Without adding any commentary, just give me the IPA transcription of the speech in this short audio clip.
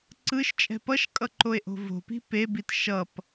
ǀ ɯ ʃ t͡ʃʼ ɛ̤ p ʌ ʃ kʼ ʌ ǃ o e̯ ʔ o̤ v o̤ p i̤ p e b i t ʃ ʌ p

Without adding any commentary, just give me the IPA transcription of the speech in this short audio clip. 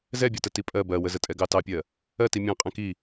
z ɛ bʲ ɒ t ə t i pʼ ɜ b ɜ w ə z ə tʼ ɛ ɡ ɑ t ɑ pʲ ɜ | ɜ t i mʲ ɑ̃ qʼ ɛ̃ k i

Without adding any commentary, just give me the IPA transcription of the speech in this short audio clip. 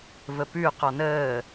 v ə p ʉ q ɔ n əː

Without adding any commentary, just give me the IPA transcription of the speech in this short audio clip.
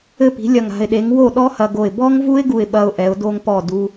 ɘ˥˩ p i̤˩˥ lʲ ɐ˧˩ ŋ a̤˧˩ ɪ̯ ɗ e˩˥ ŋ w o˥˩ ɗ ɔ˦˥ h ɐ˧ ɡ o˧˩ ɪ̯ b ɔ˦˥ ŋ v u˦˥ ɪ̯ ɡ u˧˩ ɪ̯ ɓ ɐ˦˥ ʊ̯ ʔ ɛ˩˥ ʊ̯ d o˦˥ ŋ p ɔ˥˩ d u˦˥

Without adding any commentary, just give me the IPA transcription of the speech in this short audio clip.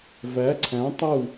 v æ˨˦ ǀʰ æ̃˨˦ tˤ u˥˨

